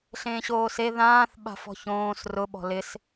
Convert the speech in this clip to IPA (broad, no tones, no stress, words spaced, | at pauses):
ɬẽːɕoːse ðãːθ ɓa̤fɔ̤çõːs rʊ ɓɔ̤lɪs